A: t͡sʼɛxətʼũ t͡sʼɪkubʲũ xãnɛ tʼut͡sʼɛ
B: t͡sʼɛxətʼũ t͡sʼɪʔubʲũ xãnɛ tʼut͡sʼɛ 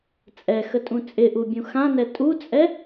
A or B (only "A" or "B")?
B